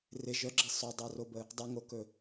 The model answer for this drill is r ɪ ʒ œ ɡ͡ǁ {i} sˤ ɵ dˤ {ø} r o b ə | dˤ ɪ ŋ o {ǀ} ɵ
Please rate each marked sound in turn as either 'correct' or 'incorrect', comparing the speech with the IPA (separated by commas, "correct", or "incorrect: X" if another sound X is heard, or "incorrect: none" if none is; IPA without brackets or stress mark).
incorrect: ɪ, incorrect: œ, incorrect: k